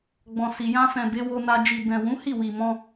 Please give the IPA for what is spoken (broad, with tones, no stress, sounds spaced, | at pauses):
ɡ͡b ɔ̃˨ s i˨ j ã˧ f ɛ̃˨ b e˨˦ w o˧ n a˧ d͡ʒ i˨ b ɛ̃˨ w ũ˨˦ h i˦˨ w i˨ m ɔ̃˧